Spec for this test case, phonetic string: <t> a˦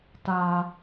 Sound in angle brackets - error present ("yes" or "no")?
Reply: no